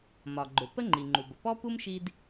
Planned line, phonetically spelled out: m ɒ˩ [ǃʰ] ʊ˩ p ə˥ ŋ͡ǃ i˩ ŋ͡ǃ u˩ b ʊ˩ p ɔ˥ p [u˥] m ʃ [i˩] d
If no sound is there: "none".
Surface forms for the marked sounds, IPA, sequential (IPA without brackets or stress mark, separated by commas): ɡ͡ǃ, u˥, i˥